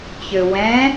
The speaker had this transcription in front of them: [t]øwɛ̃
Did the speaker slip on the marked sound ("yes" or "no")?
yes